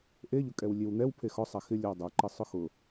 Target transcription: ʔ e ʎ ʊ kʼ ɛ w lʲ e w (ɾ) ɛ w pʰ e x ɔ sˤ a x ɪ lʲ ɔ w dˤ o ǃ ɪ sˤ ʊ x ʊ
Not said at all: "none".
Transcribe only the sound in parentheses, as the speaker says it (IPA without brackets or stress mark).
n̪